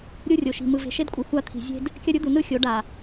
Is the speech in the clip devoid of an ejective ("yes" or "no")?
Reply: no